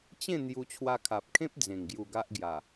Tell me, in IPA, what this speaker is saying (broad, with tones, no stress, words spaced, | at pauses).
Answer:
t͡ɕẽ˥˧ n̪ju˧t͡ɕʰwa˧kʰa˨p̚kʰẽ˦p̚ d͡zẽ˨˩ŋɡju˧ɡa˦ʔ ɡja˨˩